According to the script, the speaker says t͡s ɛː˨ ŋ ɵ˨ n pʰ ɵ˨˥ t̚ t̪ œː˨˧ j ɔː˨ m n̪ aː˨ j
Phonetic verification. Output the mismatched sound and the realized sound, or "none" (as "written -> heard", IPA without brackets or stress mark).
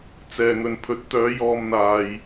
none